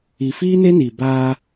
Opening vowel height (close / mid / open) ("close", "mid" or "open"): close